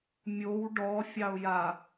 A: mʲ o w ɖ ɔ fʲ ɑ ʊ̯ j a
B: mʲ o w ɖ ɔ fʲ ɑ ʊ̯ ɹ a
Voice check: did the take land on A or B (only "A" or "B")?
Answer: A